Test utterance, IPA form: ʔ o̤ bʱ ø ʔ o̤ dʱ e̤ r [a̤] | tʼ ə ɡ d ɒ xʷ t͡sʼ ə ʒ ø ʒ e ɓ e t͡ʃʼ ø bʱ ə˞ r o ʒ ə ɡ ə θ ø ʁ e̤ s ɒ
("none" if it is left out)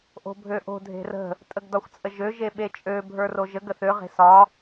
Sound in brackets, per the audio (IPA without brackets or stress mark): ə̤